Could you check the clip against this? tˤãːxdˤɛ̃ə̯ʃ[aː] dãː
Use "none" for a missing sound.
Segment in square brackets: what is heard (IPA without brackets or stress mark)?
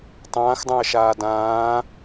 aː